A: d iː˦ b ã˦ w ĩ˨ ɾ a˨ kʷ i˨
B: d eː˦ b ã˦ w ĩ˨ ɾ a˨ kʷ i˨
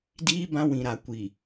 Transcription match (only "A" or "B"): A